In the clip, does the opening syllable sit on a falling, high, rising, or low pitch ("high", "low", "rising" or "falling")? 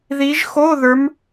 rising